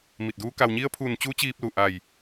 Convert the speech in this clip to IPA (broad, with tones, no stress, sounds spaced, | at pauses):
m i˧˩ t̚ d uː˧˥ k a˩ w ɲ i˧˥ ə̯ pʰ uː˧˩ n t͡ɕ u˧˥ t͡ɕ iː˧ p̚ l u˧˩ ʔ a˧˩ j